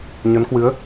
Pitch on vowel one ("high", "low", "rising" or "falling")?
rising